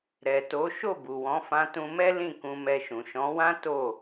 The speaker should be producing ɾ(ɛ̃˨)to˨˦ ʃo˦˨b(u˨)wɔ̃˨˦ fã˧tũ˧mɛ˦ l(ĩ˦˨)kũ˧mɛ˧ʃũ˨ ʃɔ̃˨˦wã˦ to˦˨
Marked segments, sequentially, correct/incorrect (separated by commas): incorrect, correct, correct